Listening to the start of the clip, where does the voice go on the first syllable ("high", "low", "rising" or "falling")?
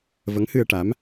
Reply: rising